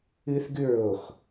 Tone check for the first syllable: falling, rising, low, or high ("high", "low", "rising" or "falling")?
high